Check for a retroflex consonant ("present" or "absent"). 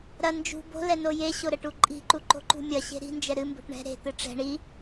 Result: present